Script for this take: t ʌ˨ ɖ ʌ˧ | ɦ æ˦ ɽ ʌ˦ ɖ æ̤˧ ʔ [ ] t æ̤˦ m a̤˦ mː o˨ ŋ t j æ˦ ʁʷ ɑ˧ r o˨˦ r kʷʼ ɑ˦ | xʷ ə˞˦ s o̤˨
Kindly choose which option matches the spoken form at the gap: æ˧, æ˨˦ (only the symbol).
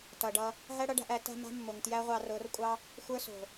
æ˨˦